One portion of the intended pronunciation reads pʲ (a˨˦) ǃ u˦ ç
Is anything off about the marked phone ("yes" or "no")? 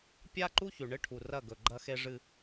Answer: yes